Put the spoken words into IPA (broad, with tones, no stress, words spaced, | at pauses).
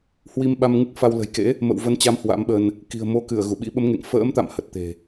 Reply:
hwi˧mɓa˧mŋɨ˦˥k̚fa˧w lə̤˨˩jkḛ˧˥ | mə̰˧˨wvə˨˦nt͡ɕa˨˦m hwa̰˧˥mɓə˧n | ki̤˨˩ə̯mo˨˦kɨ˧˩ə̯ ɣu˧˩ɓḭ˧˥ɓə˨˦mŋḛ˧˨ŋ fə̰ː˧˥mt̪a̰˧˨m hə˨˩t̚t̪e̤˨˩